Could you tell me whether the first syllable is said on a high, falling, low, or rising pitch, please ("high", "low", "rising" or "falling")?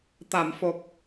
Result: low